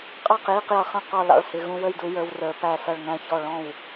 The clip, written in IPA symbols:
qʼɑ˥˨qji˥˨qjʌ˧χə̃˥˨ qɔ˥˨lɑ̰˥˨ɭhɪ˧ ɣũ˧wə˥˨jdu˧ jə˞˧w rə˞˧pæ˥˨sʌ˥˨ɭ ŋæ̃˥˨çɔ˥˨ ɭɔ̃˥˨w

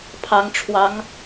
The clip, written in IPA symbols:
pʰɑ˧˥ŋʈ͡ʂʰwɑ˧˥ŋ

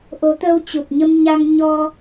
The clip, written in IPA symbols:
ʔo˨˦t̪əː˧wt͡ɕu˨˩t̚ɲə˧m ɲa˧ŋɲɔ˧

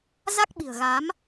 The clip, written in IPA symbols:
za˦˥k̚ɓi̤˨˩ə̯ɣa˨˦m

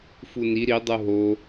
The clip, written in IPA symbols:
funi ɾi dˤuɦo

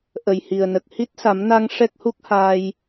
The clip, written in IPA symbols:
ʔə˨˩jhi˨˩ə̯nə˨˩k̚ hi˦˥t̚sa˨˩˦mna˧ŋ ʂɛ˦˥k̚hu˦˥k̚haː˧j

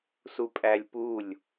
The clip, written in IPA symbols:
supʼælʲpulʲ

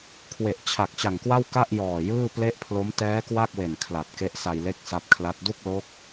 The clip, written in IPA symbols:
kʰwe˨˩ʔt͡ɕʰa˨˩k̚t͡ɕa˨˩ŋkwa˥˩w ka˥˩ʔjɔː˨˩ jɯː˥˩ple˥˩ʔpʰlo˦˥m tɛː˦˥kwa˥˩k̚we˨˩n kʰla˨˩t̚ke˦˥ʔsa˧jle˥˩k̚ sa˦˥p̚kʰla˦˥t̚ du˥˩k̚lo˦˥k̚

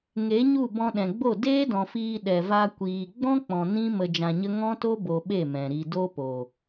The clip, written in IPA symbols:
ŋe˨˦ɲu˦˨ bɔ̃˧ɗɛ̃˨ɡ͡bo˦˨ deː˦dɔ̃˨fiː˧ ɗɛ˨va˧ kʷiː˨ ɡ͡bɔ̃˦k͡pɔ̃˨ nĩ˦ mə˧d͡ʒã˧ɲə˦ ŋɔ̃˦to˦ bo˧ɓe˦˨mɛ̃˨ɾi˧ do˦po˨

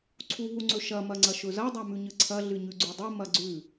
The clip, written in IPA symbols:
ǀʰuɦuŋ͡ǀɵʃɐ mɐŋ͡ǀɐʃɵzɐ dˤamʉɲɨǀʰɐ ɮɨɲʉɡ͡ǀʉdˤu mɐɡ͡ǀʉ

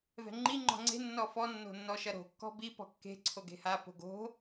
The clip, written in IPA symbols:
vɛ̤ŋ͡ǃi ŋ͡ǃɔ̤ŋ͡ǀe̤ nːɔfɔ nːo̤nːɔʃɐɾo̤ kːɔ̤bi pɔ̤kːe̤ ǀʰoɡe̤ha po̤ɡo̤

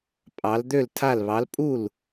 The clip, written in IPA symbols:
pʼɑ˧˥l d̪ø˥˨ltʰa˥˨lβɑ˧˥l pʼu˥˨l

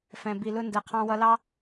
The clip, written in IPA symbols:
fɛ̃˨bi˨lʊ˧ndɛ˨ qʰɑ̃˧wʌ˧lɑ˦

